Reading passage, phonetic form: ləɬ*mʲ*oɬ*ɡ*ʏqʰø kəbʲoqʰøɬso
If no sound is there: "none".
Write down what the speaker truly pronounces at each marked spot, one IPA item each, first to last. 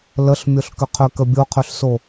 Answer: mʲ, k

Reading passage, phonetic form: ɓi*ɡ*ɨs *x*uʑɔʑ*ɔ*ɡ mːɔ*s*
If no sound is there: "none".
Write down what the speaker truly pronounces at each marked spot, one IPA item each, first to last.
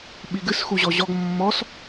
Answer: ɡ, x, ɔ, s

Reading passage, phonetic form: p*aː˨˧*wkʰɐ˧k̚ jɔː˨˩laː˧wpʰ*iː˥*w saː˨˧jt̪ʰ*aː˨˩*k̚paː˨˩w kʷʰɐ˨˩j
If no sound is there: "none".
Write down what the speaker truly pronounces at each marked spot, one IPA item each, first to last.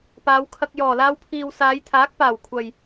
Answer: aː˨˧, iː˨, aː˨˥

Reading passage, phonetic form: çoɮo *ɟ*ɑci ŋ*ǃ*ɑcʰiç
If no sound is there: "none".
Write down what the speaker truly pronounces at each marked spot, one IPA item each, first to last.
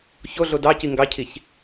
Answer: d, ɡ

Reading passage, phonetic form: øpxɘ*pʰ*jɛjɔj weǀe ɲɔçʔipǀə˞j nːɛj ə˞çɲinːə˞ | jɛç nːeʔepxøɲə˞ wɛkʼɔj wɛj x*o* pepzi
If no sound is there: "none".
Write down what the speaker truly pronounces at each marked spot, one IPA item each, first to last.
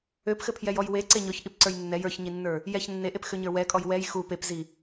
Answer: pʰ, u

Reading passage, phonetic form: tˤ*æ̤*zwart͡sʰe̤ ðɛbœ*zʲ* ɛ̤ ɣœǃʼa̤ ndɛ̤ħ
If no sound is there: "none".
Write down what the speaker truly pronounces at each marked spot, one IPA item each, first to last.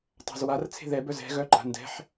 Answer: a̤, z

